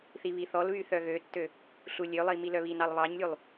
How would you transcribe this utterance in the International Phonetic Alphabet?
θ i β i θ ɔ l β y θ œ ɣ ø tː ø | ɬ u lʲ ø lˠ i m i l œ β i n ɑ lˠ β ɑ ɲ lʲ u lˠ

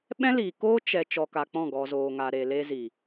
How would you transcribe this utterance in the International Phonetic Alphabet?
ɓ ɛ̃˦ l iː˨ k oː˦ t͡ʃ ɛ˧ t͡ʃ ɔ˧ k a˧ k͡p ɔ̃˦˨ ɡ ɔ˨ z oː˨ ŋ a˨ ɾ e˨ l e˧ z i˨

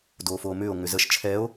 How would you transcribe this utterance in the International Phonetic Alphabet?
d oː f oː m ʏː o̯ ŋ ʏ z ə ʃ t͡ʃʰ ɛ o̯

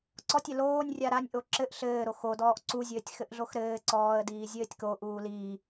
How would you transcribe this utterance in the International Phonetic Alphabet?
ǀ ɔ tʲ ɘ l oː nʲ rʲ a ɾ a nʲ ʔ o ǁ ɘ ʔ ɬ ɘː ɾ o x o d ɔː ʔ ǀ u zʲ ɘː tʲ x ɘ ʔ ɮ o x ɾ ɘː ǀ ɔː ə̯ d iː zʲ ɘː tʲ k o ʔ uː l iː

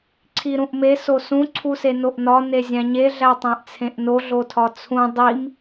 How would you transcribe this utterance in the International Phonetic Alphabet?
ǀʰ i ɾ ũ ʔ m e s o s ũ ǀʰ u s e n o ʔ n ɒ n e zʲ æ̃ ɲ e ɮ æ tˤ æ̃ ʔ t͡sʰ ẽ ʔ n o ɮ o tʰ ɒ t͡sʰ ũ dˤ i m

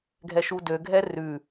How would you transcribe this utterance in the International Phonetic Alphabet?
ɡʱ ɛ ʃ u d ø ɡʱ ɛ r ʉ

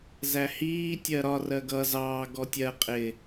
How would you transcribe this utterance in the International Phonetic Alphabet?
z æ h iː tʲ ɜ ɾ ɒ r ɜ ɡ ʌ z ɑː ɡ ɔ tʲ ɜ qʼ ɪ

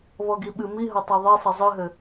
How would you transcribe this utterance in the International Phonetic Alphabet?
β ɔ ɡ i ɓ ɨ m i ɦ ɐ tˤ a ðˤ e sˤ ɐ zˤ ɨ ɦ ɘ

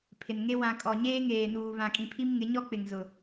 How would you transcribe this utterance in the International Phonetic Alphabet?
pʰ ɪ˨ n ŋ e˦ w ã˨ kʼ ɔ˨ ɲ eː˦ ŋ eː˨ n uː˨ β ã˨ kʼ ĩ˨ pʰ i˦ m ŋ ɪ˨˦ ɲ ɔ˦ k͡p ɪ˨ ŋ z ʊ˨

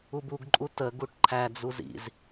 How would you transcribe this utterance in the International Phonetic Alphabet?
u b u ɡ ǃʼ u t ə ɡ u ʈ ǃʰ æ d͡z u z ḭ z

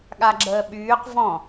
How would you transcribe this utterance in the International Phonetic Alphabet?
ɠ a ɡ͡ǁ əː ɓ yː q v ɔ̃

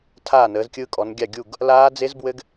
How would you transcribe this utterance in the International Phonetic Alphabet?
tʰ aː˥˨ n əː˨˦ z kʲ ɯ˦˥ kʼ ɔ˨˦ n ɡʲ a˥˨ ɡʲ u˥˨ ɡ | l aː˦˥ d͡z e˦˥ z b w ɘ˦˥ ɡ

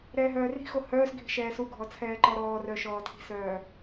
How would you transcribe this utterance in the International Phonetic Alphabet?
ɾ ɛː ɦ œː r i̤ x o h œː s ɡʱ i̤ ʃ ɛː s u ɡʱ ɔ t͡sʰ ɛː ǃ ɔ ɾ ɔː r œ ʃ ɔː tʰ i̤ s œː

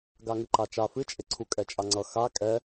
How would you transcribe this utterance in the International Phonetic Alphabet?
ɡ a ŋ ɨ ǃ a t͡ʃ a f ɨ t͡ʃʼ e ǀʰ u kʼ ɛ t͡ʃʼ a ŋ͡ǀ ʌ x a kʼ ɛ

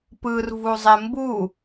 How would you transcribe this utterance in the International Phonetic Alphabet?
p ɯ r v u zˤ e m b u

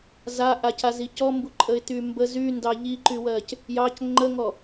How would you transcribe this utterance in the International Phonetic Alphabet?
z a ʔ a c a z i c ɔ m b u ǃʼ ə ɪ̯ t y m b ə z y n d ɑ ʎ i ǃ y w ɜ c | j ɑ c ŋ͡ǃ ə ŋ ɔ

